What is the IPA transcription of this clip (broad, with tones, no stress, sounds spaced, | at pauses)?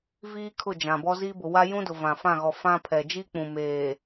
v iː˦ kʰ ʊ˦˨ d͡ʒ ã˨ b ɔ˦ z iː˦ b ʊ˨ w a˦ j ũ˦ d ʊ˨ v ã˨ f ã˦˨ ɣ ɔ˨ f ã˦ pʰ ɛ˨ d͡ʒ i˦ k͡p ũ˨ m eː˨